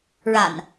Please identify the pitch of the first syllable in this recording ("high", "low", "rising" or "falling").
low